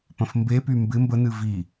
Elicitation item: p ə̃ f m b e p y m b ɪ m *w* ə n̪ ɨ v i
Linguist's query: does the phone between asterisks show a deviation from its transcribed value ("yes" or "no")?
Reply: yes